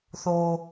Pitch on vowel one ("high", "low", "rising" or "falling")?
low